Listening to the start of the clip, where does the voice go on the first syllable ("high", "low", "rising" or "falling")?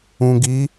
low